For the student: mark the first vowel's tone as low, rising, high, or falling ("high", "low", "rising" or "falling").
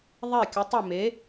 falling